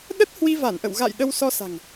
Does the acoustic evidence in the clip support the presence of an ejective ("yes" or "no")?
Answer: no